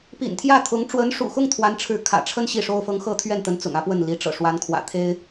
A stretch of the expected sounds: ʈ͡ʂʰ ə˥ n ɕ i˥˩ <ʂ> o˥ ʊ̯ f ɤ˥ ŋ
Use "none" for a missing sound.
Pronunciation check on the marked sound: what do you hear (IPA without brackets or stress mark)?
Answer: ʂ